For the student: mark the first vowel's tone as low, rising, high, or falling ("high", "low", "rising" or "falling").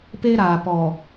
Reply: high